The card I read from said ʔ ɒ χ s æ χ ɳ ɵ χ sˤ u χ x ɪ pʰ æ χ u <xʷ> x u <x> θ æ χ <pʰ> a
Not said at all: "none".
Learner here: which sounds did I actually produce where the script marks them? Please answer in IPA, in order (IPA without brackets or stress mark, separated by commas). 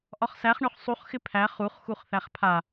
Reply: χ, χ, pʰ